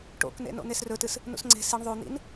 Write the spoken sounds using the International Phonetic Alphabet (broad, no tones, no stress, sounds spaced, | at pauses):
ʈ o̰ k n ḛ n o̰ n̪ e s r ɵ t ɨ s | n ṵ s ŋ͡ǀ e̤ s i ɳ ðˤ o n̪ ḭ n